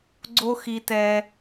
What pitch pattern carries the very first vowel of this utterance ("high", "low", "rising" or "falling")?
high